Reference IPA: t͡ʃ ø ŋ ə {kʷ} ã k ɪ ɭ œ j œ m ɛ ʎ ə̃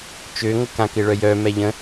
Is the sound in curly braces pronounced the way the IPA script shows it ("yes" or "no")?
no